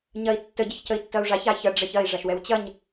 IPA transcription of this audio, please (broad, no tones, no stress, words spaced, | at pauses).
ɲɐi̯tːə ɟəçcəi̯tːɐu̯ʐaç açɐ ɖ͡ʐɐçɐi̯ ʐaʃwɛwt͡ɕɐɲ